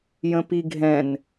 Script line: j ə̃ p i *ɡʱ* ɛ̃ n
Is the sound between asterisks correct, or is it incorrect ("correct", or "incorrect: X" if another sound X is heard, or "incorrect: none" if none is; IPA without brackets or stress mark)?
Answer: correct